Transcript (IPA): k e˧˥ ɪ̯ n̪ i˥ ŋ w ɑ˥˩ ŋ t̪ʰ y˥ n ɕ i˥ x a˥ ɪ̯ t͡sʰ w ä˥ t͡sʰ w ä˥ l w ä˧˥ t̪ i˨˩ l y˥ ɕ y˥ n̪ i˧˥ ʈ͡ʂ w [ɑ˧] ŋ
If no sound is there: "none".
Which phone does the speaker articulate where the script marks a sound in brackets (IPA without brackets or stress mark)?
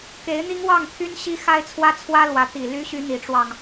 ɑ˧